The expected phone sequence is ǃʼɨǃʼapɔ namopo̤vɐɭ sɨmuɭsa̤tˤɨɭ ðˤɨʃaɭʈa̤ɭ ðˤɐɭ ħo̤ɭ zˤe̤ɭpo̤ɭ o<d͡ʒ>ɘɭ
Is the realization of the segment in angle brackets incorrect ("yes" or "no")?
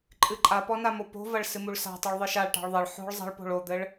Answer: yes